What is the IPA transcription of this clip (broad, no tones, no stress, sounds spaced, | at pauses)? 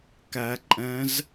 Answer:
k æ ǃʼ ɛ̃ z